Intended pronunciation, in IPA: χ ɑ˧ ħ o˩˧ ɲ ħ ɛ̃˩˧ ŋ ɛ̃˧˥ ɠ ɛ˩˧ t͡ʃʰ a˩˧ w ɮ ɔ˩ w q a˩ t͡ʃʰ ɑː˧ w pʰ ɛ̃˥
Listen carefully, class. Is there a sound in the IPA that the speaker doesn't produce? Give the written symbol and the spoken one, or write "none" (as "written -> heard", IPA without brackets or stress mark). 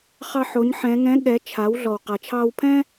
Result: none